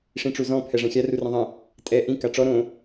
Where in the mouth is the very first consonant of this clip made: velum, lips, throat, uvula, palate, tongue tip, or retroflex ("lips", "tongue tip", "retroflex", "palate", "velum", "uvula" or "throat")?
retroflex